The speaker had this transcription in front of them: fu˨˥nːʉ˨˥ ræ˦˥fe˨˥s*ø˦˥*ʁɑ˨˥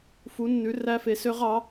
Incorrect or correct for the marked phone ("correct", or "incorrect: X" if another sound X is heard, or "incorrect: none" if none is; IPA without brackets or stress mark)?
correct